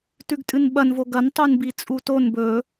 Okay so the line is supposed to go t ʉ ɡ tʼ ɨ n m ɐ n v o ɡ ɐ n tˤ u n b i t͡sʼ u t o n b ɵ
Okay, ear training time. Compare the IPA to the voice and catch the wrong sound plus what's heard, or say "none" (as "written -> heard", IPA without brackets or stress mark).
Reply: m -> ɓ